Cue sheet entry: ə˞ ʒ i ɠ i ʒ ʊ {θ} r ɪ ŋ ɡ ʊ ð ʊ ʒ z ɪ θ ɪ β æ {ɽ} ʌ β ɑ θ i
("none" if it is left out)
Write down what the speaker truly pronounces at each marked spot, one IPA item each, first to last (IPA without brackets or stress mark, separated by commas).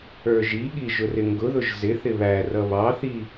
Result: none, r